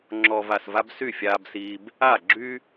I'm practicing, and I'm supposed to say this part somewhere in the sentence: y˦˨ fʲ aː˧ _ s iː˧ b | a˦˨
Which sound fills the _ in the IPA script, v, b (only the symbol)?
b